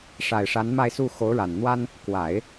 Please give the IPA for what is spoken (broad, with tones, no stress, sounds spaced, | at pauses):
ʂ a˨˩ ɪ̯ ʂ a˧˥ n m a˥˧ ɪ̯ s u˥˩ x o˧˥ ʊ̯ ɻ a˨˩ n n̪ w a˥ n | k w a˨˩˦ ɪ̯